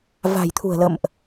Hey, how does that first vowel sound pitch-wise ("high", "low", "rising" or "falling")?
low